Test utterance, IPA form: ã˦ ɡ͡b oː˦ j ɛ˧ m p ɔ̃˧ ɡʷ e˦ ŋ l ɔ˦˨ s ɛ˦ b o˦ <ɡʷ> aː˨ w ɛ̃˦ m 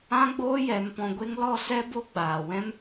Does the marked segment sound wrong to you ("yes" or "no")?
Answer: yes